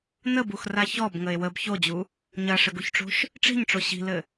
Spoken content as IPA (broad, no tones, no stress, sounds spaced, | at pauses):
n ə b u x r a ç ɔ b ŋ ə e̯ w ə b ç o d͡ʑ u | ɲ ɐ ʂ ɘ ɡ u ç ʈ͡ʂ o̤ ʃ | ʈ͡ʂ i̤ ɲ ʈ͡ʂ o ɕ i̤ l ɘ